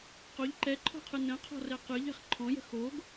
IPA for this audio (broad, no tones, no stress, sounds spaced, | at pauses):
q o ʎ ǃ ɛ ǃʰ ɔ̤ qʰ ɯ n ə̃ qʰ ɔ̤ r ɛ q ɯ ʎ ɛ̤ χ ǃʰ ɔ̃ j ə̤ x o ɡ